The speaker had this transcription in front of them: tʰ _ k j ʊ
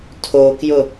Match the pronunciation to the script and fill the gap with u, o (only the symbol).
o